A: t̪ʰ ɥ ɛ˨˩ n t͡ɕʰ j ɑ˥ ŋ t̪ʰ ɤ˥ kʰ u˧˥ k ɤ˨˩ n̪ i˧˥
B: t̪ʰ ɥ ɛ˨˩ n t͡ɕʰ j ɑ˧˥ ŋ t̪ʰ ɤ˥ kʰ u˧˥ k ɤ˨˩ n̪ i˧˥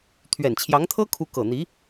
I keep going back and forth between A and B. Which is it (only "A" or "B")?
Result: B